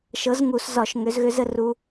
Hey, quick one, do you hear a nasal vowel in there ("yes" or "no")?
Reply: no